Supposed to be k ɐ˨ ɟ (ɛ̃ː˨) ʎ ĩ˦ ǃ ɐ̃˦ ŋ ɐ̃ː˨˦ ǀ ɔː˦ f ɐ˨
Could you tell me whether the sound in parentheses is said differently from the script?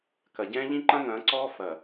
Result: yes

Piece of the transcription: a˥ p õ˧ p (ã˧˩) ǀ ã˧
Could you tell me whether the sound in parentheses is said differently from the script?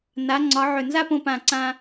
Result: no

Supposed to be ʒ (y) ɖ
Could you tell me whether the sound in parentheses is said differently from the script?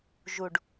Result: yes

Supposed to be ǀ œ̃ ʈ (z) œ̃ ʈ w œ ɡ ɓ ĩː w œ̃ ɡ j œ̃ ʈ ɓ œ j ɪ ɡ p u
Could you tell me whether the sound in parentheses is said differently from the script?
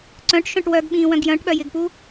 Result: yes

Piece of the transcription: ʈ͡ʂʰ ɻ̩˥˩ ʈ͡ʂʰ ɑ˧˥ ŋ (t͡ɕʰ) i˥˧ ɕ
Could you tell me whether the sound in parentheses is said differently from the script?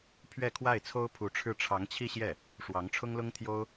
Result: no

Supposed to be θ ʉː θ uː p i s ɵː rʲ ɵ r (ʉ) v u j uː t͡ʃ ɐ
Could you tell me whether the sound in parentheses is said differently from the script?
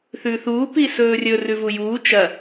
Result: no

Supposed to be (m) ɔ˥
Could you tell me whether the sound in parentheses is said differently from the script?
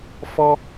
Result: yes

